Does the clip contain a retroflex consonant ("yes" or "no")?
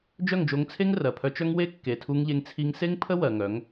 no